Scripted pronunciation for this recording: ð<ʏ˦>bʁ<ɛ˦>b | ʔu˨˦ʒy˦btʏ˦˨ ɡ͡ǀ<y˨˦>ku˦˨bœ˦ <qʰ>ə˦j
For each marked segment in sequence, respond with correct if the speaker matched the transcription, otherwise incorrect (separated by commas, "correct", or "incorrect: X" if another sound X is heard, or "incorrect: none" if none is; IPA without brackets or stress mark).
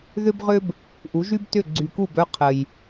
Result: correct, incorrect: ʏ˦, incorrect: y˨, correct